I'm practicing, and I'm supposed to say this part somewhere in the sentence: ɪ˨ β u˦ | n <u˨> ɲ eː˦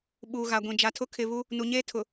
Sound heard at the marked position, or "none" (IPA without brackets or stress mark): u˨